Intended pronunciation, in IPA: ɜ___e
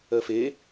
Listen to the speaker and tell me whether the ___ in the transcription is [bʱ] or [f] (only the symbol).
f